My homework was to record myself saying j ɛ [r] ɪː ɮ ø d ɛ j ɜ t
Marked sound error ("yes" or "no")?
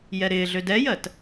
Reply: yes